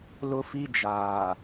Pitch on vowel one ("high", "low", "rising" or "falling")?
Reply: high